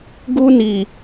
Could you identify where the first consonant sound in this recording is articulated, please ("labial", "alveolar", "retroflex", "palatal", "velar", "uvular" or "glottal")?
velar